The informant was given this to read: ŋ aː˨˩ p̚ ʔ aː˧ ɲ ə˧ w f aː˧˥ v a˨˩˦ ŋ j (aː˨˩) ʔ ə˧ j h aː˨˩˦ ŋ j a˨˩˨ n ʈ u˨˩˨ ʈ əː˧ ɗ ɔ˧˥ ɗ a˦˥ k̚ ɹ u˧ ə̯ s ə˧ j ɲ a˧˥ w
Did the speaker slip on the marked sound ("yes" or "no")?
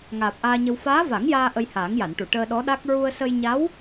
yes